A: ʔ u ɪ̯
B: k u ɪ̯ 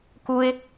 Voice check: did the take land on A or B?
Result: B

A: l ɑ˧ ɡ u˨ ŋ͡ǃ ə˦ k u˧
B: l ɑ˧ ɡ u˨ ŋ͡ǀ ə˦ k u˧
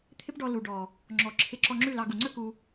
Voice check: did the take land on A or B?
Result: B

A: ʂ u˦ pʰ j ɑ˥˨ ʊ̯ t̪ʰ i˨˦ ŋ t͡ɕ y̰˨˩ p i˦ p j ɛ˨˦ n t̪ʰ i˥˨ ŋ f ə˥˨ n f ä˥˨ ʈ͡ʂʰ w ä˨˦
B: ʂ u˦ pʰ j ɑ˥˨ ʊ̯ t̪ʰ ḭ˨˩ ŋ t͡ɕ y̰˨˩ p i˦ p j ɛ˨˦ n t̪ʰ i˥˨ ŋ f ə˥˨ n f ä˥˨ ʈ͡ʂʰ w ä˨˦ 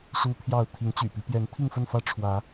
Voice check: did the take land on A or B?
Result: A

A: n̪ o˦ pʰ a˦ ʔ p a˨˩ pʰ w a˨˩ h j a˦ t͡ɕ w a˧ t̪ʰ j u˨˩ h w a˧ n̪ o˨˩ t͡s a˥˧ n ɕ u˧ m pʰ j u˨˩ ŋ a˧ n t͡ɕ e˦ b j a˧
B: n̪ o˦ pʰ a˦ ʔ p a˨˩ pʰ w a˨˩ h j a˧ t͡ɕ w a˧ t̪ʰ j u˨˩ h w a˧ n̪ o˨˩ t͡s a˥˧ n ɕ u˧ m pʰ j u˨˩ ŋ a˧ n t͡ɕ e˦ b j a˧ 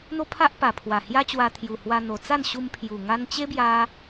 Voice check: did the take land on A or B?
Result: A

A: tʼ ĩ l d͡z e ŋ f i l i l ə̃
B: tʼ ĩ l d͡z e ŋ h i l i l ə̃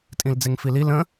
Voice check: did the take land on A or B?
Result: A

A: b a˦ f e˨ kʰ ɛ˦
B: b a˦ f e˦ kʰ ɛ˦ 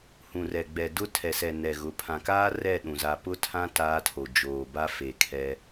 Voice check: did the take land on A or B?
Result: A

